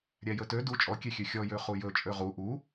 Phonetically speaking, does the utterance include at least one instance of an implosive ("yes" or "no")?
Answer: no